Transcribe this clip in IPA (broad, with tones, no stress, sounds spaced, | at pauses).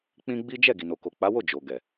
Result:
k͡p ĩ˦ ɡ͡b i˦ d͡ʒ ɛ˦˨ ɡ i˨ n o˨ k o˨ k͡p a˨˦ w o˦˨ d͡ʒ o˨ ɡ ɛ˨